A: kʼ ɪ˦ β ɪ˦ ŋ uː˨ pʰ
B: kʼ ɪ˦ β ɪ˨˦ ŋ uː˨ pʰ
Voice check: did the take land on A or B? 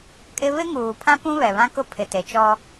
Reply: A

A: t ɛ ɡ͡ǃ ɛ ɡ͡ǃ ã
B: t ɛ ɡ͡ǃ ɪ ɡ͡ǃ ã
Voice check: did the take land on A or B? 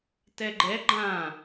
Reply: A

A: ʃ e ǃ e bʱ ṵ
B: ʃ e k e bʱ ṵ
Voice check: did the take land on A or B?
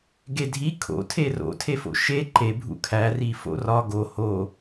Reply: A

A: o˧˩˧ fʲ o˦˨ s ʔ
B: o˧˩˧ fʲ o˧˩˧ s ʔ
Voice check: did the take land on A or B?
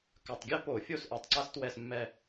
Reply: A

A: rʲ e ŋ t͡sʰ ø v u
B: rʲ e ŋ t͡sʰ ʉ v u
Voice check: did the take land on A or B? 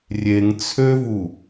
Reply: A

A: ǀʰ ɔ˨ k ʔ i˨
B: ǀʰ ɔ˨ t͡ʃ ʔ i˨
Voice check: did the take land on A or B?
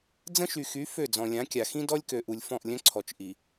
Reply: B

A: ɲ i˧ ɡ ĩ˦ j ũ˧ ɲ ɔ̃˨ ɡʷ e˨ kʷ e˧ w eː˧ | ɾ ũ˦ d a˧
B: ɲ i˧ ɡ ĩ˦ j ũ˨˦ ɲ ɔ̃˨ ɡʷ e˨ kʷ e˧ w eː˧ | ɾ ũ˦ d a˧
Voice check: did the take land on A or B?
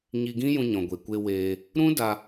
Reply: A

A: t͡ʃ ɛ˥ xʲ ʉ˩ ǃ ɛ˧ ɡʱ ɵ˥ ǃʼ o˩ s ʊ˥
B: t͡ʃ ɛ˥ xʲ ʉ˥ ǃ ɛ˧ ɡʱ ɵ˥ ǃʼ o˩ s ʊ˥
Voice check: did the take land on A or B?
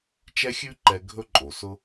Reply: B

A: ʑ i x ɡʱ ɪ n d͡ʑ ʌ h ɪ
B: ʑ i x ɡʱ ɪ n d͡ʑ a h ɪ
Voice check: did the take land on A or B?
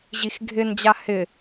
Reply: B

